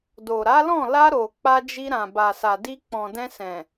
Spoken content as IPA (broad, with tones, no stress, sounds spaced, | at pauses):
d o˨ ɾ a˨˦ l ɔ̃˦˨ l a˧ ɾ o˨ k͡p a˧ d͡ʒ i˧ ɾ ã˨ b a˨ s a˨ d i˧ k͡p ɔ̃˨ d ɛ̃˧ s ɛ̃˨